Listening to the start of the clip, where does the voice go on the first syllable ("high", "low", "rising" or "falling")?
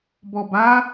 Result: low